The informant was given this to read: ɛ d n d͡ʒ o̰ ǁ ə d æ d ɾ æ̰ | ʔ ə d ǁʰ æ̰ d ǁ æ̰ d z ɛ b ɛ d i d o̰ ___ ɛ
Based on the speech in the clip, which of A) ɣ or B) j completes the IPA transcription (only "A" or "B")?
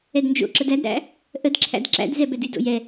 B